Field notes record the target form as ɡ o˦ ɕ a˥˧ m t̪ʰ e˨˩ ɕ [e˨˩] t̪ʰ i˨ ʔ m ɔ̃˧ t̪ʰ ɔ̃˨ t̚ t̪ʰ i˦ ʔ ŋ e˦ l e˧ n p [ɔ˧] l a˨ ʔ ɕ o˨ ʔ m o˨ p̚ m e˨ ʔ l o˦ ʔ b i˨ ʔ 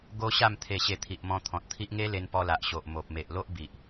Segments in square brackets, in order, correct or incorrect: correct, correct

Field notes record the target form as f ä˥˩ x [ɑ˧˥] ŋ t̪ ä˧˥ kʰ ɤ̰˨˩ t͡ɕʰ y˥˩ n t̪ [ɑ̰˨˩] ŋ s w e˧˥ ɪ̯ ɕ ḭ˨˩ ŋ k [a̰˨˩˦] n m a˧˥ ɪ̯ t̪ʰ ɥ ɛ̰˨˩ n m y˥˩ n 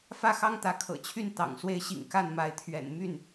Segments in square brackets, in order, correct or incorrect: incorrect: ɑ˥, correct, incorrect: a˥˩

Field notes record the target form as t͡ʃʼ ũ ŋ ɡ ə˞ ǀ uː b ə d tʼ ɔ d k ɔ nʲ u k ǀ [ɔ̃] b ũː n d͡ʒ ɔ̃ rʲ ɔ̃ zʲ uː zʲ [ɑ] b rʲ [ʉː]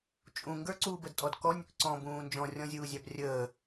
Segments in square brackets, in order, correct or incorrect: correct, correct, incorrect: əː

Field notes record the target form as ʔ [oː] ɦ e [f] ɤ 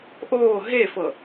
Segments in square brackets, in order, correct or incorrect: correct, correct

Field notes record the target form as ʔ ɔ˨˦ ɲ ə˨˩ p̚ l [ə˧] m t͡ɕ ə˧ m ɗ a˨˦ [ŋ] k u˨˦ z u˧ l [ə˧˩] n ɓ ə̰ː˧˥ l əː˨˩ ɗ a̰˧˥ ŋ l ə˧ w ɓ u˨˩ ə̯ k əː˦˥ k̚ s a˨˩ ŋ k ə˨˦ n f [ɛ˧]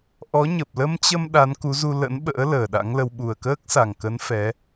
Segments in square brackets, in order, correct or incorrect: correct, incorrect: n, incorrect: ə̰˧˥, incorrect: ɛ˨˦

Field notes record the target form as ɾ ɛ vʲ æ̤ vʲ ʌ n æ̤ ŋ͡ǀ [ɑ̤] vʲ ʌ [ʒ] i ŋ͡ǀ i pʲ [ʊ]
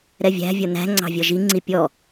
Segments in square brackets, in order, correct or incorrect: correct, correct, incorrect: ɔ

